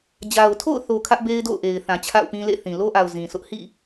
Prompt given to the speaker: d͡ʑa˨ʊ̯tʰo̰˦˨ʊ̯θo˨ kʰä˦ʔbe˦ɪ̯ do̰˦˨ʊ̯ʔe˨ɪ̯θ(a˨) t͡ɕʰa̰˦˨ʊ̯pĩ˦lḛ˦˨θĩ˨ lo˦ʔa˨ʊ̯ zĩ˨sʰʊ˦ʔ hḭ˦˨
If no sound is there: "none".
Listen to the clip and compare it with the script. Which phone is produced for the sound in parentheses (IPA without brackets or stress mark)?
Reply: ã˨